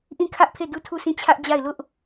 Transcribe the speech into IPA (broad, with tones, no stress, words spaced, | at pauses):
ʔĩ˦˨kʰä˦ʔpʰe˦˨ du˦˨tʰu˦˨sĩ˦˨ t͡ɕʰä˦ʔd͡ʑa˦˨ɪ̯ lʊ˦ʔ